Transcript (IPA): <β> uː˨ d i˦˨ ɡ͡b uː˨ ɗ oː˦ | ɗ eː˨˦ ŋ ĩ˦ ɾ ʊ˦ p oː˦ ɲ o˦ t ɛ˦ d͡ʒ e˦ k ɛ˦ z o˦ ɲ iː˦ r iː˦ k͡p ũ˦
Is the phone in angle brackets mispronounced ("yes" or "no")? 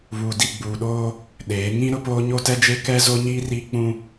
no